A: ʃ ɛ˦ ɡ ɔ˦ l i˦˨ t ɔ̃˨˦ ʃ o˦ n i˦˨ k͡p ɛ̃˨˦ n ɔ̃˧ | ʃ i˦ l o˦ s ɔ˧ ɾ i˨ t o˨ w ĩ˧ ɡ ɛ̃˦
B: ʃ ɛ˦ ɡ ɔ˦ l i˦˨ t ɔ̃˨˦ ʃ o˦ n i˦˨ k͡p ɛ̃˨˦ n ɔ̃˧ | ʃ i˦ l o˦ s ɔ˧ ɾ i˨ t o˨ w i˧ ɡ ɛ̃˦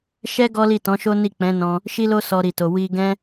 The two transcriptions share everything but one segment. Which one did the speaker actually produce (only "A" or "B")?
B